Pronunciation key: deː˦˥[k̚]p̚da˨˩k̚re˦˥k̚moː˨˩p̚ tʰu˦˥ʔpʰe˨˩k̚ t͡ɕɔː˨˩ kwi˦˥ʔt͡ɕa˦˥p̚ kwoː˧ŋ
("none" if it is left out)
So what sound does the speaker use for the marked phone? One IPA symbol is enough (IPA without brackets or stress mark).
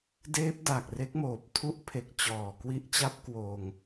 none